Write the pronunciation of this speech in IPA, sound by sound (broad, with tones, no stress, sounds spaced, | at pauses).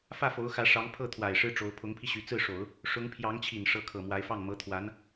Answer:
f ä˥˩ f o˧˥ ʊ̯ x ä˧˥ ʂ ɑ˧˥ ŋ pʰ ɤ˥˩ t̪ʰ w a˨˩ ɪ̯ ʂ ɻ̩˥ ʈ͡ʂ o˧˥ ʊ̯ pʰ ʊ˧˥ ŋ pʰ i˧ ɕ y˧˥ t͡s ɹ̩˥˩ ʂ o˨˩˦ ʊ̯ | ʂ ʊ˧˥ ŋ pʰ j ɑ˧˥ ŋ t͡ɕʰ i˨˩ n ʂ ɤ˧˥ kʰ ɤ˨˩ m w a˧˥ ɪ̯ f ɑ˥˩ ŋ m ɤ˧˥ t̪ʰ w a˧˥ n